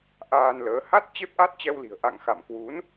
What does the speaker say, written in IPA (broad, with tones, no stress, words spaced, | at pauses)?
ʔaː˧nləː˨˦ ha˦˥t̚ t͡ɕe˦˥p̚ʔa˦˥t̚t͡ɕɛ˧wli̤˨˩ə̯ ʔa̰˧˨ŋ xa̰˧˨mkwu˨˦n